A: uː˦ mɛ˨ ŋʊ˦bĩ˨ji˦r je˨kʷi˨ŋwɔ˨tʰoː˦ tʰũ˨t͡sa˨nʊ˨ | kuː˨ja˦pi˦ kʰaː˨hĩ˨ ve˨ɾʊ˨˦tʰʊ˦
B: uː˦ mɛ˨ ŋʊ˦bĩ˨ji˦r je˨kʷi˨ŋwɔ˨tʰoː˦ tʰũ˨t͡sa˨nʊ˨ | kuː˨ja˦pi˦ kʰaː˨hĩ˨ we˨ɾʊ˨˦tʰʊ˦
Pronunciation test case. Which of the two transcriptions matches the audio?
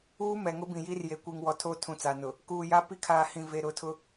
A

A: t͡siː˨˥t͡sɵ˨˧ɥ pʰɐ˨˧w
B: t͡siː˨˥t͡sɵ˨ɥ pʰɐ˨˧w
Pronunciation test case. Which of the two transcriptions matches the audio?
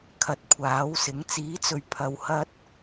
B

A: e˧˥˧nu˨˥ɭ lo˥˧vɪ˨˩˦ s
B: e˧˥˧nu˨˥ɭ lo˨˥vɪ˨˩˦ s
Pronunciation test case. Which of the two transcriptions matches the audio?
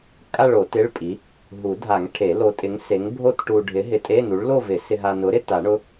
A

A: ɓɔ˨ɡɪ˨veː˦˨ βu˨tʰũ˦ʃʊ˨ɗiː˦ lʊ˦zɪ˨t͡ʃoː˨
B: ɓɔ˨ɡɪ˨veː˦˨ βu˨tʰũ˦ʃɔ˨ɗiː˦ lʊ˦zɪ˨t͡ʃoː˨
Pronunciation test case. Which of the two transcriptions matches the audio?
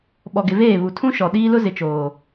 B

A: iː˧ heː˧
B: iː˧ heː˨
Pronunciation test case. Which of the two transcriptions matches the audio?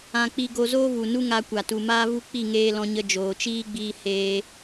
A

